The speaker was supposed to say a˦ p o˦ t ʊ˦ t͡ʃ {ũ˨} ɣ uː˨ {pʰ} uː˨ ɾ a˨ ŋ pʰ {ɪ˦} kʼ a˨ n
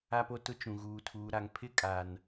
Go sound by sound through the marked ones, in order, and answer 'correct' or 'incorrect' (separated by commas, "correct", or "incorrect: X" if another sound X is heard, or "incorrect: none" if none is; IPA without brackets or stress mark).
correct, incorrect: tʰ, correct